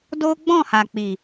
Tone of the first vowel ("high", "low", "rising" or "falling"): high